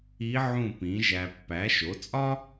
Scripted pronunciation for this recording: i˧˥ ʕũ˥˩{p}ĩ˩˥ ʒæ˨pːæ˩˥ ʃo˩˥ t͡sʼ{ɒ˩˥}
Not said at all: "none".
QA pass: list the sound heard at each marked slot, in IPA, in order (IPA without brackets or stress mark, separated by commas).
p, ɒ˥